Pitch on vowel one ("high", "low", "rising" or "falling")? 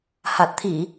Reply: low